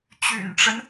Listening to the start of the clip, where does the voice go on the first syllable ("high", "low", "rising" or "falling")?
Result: low